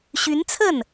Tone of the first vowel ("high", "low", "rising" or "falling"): rising